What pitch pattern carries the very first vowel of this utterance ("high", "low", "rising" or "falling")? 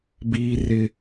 high